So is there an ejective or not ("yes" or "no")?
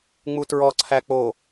no